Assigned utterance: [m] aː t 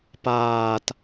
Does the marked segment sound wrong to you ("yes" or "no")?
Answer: yes